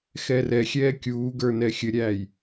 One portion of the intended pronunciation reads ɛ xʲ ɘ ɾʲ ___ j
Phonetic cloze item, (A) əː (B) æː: B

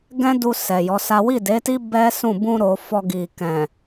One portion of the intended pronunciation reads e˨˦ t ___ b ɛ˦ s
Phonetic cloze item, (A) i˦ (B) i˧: A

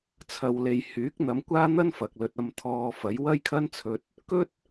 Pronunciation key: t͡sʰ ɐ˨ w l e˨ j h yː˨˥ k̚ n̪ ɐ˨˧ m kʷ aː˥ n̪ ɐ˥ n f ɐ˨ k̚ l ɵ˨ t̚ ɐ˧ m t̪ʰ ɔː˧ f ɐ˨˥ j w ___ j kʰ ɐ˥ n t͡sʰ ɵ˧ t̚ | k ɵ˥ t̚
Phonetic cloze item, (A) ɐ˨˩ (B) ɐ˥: B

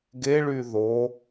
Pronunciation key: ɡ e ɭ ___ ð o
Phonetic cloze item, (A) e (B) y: B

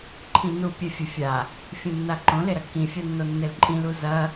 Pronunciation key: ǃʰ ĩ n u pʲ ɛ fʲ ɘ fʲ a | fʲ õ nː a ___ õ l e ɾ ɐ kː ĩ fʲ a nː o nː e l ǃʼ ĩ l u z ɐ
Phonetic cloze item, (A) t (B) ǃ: B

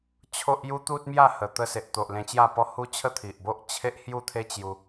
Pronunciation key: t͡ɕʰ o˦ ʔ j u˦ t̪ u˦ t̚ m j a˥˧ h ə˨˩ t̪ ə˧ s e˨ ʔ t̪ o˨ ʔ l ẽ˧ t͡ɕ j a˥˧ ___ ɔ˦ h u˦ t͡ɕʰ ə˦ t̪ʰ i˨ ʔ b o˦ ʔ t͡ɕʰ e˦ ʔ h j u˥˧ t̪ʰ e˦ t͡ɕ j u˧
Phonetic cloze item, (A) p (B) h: A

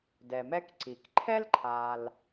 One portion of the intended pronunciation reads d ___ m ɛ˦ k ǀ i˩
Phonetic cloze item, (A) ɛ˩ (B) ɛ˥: A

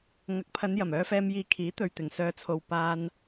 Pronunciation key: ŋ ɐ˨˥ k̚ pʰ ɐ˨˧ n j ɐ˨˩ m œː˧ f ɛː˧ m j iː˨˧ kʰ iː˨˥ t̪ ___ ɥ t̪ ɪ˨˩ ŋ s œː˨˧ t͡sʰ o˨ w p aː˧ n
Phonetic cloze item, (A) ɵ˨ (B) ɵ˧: A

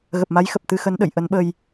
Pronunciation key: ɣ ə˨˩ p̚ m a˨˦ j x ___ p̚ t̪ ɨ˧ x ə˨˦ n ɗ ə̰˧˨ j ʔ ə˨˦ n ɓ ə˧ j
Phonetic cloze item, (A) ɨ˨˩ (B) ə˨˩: B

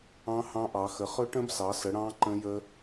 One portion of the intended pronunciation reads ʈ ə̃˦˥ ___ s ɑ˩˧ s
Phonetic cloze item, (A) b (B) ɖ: A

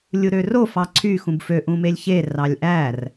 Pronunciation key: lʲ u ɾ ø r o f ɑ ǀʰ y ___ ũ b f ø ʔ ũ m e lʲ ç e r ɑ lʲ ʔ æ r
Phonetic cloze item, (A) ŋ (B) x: B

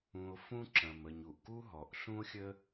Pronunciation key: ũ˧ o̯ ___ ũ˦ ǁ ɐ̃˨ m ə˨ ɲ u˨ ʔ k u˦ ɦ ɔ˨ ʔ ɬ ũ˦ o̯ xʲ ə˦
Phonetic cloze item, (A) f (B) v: A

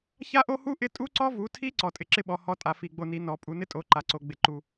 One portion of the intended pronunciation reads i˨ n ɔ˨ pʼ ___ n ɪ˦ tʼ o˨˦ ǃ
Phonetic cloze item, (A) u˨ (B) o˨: A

